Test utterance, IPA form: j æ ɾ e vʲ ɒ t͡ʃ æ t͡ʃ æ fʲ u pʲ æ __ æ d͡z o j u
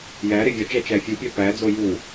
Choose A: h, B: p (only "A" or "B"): B